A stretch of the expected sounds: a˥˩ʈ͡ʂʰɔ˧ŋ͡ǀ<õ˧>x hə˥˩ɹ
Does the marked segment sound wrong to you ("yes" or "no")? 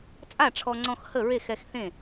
yes